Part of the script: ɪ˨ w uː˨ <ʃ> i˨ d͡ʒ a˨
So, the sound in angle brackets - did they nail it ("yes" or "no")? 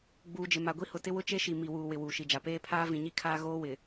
yes